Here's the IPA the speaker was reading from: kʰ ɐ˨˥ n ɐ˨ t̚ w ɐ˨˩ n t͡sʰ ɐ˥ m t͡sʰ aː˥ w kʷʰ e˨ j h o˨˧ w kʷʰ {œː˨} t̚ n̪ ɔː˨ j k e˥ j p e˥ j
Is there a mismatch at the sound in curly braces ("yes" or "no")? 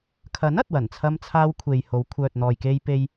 no